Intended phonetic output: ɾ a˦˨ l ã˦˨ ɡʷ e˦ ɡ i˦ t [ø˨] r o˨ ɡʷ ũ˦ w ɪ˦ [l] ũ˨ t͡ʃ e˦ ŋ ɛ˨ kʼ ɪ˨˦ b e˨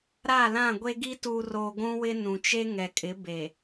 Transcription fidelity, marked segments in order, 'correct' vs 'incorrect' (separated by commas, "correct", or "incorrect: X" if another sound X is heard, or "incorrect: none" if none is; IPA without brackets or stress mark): incorrect: u˨, incorrect: n